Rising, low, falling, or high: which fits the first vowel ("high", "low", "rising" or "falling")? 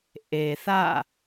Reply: low